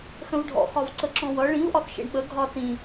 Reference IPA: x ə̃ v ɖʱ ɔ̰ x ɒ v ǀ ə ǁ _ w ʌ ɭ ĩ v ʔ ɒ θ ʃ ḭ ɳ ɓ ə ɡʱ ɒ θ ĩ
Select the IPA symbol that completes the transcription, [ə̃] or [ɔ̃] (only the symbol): ɔ̃